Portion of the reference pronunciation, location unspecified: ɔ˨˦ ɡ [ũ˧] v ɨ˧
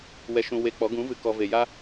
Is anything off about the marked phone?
yes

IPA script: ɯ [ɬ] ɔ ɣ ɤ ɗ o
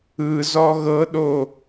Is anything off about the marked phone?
yes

